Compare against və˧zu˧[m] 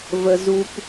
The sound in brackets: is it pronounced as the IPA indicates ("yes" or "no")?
no